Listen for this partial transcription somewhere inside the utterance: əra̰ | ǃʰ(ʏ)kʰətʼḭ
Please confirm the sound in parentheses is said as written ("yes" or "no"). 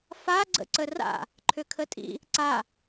yes